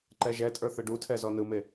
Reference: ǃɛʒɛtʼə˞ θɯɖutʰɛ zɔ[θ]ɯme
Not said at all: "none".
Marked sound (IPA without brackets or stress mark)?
n